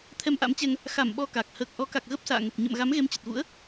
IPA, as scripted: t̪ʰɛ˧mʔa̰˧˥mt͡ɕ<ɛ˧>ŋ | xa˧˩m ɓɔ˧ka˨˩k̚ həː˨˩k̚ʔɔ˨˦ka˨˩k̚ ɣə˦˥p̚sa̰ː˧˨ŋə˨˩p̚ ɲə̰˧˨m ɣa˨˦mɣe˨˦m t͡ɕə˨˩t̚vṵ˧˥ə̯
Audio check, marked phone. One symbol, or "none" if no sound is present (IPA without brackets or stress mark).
ɛ˧